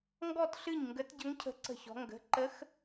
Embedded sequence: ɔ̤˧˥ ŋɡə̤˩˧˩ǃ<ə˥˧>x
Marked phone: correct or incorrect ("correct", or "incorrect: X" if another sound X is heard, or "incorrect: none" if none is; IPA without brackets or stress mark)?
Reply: incorrect: ə˧˥